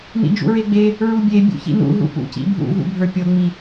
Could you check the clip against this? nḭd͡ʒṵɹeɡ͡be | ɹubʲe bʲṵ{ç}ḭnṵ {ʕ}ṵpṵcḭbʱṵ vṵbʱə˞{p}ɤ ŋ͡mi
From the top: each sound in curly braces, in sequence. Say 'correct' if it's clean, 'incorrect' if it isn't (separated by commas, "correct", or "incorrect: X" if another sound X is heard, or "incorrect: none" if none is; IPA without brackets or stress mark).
correct, incorrect: ɦ, incorrect: pʲ